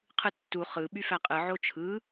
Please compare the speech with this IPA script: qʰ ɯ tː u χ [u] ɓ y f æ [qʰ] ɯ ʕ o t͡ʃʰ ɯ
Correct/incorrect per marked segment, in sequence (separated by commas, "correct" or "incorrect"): incorrect, incorrect